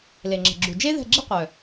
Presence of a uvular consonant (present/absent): present